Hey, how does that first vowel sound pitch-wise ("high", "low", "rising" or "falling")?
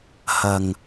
low